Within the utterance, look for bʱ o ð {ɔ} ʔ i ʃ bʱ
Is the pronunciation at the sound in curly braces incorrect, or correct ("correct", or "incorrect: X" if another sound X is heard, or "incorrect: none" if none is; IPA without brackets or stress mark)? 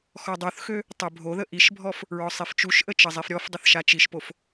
incorrect: ə